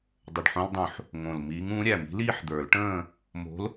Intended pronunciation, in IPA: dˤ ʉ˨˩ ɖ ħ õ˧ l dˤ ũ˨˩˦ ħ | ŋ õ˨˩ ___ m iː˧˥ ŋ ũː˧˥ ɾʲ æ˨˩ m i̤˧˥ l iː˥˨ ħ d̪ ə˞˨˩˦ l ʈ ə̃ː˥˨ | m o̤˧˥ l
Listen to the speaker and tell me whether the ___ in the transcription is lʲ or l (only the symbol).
l